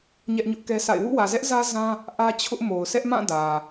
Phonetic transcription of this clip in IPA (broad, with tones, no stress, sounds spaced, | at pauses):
ɲ ɛ˦ ʔ ɲ ʊ˦ ʔ k ɛ˦ s a̰˦˨ ɪ̯ w ṵ˦˨ w ä˨ z ɛ˦ ʔ z ä˦ z ã˦ | ʔ ä˦ t͡ɕʰ ʊ˦ ʔ m o˨ ʊ̯ sʰ ɛ˦ ʔ m ã˦˨ d ä˨